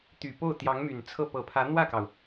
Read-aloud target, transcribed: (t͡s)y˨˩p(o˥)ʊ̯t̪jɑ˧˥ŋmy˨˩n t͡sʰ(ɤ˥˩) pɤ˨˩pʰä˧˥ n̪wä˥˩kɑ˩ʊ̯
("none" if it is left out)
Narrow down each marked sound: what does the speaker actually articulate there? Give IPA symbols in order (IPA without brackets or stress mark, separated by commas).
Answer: t̪, o˥˩, ɤ˥˩